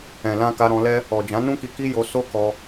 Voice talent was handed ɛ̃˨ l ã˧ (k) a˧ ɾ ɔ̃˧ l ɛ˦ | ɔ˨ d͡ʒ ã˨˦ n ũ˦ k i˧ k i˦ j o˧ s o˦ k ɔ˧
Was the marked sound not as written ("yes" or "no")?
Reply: no